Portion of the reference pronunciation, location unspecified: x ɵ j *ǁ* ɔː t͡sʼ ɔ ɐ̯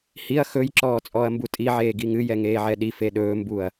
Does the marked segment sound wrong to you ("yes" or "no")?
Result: no